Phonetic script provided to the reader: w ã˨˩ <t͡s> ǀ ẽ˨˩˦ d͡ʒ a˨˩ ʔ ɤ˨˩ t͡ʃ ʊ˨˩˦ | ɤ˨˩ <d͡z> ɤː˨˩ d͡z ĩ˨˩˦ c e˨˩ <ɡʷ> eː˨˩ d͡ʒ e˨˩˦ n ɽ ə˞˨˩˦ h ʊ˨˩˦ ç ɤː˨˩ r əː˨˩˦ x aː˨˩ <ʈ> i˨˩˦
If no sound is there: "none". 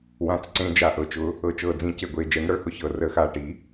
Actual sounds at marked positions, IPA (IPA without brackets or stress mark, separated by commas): t͡s, t͡ʃ, ɡʷ, ʈ